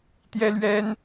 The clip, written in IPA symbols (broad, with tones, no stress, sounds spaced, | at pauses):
t̪ j ɛ˥ l ɥ ɛ˥ n